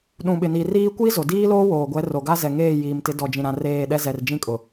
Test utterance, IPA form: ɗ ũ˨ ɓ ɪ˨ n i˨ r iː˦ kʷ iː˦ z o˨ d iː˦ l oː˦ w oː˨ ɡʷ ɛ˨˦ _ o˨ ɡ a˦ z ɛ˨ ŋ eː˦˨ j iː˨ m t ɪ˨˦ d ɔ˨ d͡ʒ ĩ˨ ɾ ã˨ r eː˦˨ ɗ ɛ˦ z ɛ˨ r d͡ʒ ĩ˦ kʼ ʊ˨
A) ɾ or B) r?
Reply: B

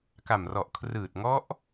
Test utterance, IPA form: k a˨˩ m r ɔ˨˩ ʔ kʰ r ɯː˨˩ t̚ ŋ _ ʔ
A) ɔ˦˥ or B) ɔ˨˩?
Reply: A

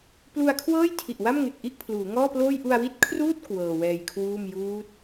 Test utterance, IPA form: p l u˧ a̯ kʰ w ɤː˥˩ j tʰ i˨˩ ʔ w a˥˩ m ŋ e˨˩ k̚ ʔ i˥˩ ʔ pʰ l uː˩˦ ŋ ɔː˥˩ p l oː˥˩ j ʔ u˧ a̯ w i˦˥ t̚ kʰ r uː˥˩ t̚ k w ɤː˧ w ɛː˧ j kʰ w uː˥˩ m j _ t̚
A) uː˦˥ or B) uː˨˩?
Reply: A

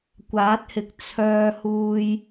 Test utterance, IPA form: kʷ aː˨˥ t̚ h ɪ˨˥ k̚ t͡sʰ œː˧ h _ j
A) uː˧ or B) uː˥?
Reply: A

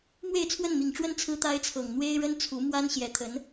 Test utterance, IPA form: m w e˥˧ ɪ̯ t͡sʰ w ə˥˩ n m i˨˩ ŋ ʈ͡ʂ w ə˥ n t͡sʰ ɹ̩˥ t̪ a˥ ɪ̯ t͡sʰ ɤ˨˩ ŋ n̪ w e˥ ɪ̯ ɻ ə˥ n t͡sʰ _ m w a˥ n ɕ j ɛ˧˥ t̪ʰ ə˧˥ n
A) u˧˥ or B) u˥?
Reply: A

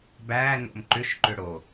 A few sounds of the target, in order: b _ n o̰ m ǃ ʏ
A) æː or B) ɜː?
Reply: A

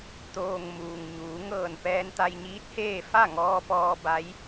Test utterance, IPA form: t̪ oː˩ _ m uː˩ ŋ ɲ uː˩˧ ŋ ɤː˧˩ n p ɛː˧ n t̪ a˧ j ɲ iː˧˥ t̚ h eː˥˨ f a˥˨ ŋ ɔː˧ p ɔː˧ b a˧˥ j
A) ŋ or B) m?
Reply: A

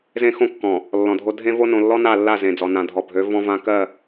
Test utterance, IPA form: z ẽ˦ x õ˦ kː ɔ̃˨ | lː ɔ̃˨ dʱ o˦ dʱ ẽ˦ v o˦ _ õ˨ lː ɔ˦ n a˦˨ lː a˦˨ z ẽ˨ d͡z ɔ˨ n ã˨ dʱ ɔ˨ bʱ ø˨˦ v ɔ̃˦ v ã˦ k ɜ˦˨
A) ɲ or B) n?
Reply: B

